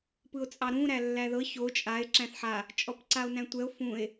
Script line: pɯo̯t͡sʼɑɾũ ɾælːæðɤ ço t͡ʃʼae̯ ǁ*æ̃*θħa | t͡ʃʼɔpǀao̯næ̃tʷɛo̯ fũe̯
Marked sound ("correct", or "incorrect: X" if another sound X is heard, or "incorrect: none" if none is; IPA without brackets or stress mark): correct